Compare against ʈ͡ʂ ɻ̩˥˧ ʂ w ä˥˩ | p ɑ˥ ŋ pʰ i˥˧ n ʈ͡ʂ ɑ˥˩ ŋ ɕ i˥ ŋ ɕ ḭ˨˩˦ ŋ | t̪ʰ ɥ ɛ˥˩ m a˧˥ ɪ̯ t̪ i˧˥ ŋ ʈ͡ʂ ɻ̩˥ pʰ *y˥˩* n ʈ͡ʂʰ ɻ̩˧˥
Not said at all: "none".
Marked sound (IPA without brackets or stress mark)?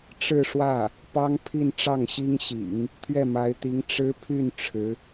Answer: y˥˩